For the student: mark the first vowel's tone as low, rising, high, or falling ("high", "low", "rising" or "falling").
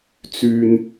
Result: low